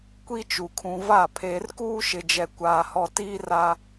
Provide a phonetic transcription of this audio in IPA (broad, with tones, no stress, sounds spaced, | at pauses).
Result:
kʷ i˦ t͡ʃ u˨ kʰ ũ˨ v a˦˨ pʰ eː˨ r k uː˦ ʃ ɪ˨ d͡ʒ ɛ˨ kʷ aː˨ h ɔ˨ t iː˦ r a˦